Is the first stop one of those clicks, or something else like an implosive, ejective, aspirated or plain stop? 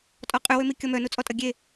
ejective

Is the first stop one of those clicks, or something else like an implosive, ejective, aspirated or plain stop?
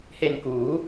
plain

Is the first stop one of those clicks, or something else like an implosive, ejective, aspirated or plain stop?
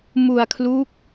aspirated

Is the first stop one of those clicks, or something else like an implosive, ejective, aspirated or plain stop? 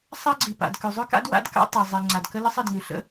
click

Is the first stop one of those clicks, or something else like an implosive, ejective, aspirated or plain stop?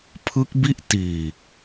aspirated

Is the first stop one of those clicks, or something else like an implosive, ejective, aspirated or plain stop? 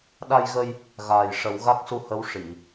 implosive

